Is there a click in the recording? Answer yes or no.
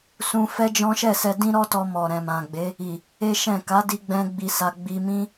no